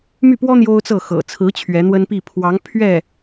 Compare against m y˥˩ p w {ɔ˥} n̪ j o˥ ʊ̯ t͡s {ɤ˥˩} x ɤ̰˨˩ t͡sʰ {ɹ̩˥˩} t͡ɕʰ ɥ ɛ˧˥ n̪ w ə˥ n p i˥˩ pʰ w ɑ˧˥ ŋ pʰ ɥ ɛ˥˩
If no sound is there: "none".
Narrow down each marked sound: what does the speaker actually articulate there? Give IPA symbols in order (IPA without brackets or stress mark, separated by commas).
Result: ɔ˥, ɤ˥˩, ɹ̩˧˥